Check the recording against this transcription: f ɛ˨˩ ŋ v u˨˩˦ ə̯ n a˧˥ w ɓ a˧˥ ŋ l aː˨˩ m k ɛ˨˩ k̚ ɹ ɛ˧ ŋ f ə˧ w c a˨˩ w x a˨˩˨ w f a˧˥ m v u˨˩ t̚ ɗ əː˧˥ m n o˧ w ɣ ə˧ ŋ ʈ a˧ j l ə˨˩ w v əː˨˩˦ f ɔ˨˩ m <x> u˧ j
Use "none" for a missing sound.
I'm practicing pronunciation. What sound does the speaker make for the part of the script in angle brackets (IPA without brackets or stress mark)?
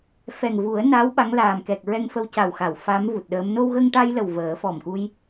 k